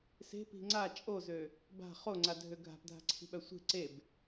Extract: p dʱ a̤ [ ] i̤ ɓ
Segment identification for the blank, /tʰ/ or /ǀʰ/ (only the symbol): ǀʰ